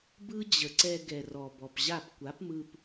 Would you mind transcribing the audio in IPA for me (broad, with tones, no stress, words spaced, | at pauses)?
bɯ˦ d͡ʑə˨ǀɛ˧ ɡɛ˨rɔ˨bɔ˨pʑa˦˨p kʷa˨˦pmɯ˧p